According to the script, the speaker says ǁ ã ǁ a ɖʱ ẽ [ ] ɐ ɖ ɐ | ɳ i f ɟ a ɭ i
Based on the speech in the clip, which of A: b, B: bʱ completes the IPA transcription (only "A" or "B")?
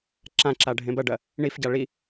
A